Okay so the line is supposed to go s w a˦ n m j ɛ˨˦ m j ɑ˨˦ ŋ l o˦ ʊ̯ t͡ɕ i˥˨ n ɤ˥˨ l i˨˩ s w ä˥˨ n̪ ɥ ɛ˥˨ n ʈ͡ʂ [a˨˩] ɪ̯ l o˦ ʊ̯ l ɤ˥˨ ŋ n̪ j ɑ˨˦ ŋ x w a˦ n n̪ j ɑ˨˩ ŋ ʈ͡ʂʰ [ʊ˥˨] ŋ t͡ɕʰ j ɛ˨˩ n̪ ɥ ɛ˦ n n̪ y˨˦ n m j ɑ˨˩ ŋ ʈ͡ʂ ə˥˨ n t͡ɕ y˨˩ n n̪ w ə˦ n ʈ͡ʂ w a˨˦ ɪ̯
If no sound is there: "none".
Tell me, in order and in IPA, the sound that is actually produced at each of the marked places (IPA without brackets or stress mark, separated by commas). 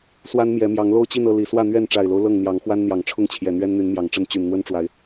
a˨˩, ʊ˥˨